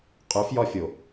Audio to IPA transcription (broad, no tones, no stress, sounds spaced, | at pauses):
qʼ ʉ f j ɒ fʲ o